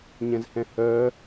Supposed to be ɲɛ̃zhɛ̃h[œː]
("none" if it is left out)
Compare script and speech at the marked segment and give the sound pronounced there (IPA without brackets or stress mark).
œː